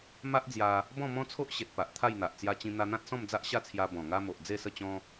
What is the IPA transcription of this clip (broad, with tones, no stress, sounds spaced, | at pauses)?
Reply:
m a˦ ʔ d͡z j a˧ | b ɔ̃˥˧ m ɔ̃˦ t͡sʰ o˦ ʔ ɕ e˨ t̚ p a˨ ʔ t̪ʰ a˥˧ j n̪ a˨ ʔ t͡s j a˧ t͡ɕ ĩ˧ n̪ a˧ n̪ ã˦ t̚ s ɔ̃˥˧ m d͡z a˦ ʔ ɕ a˥˧ t͡sʰ j a˧ b ɔ̃˨˩ ŋ a˧ m o˨ ʔ d͡z e˥˧ s ə˥˧ t͡ɕ ɔ̃˦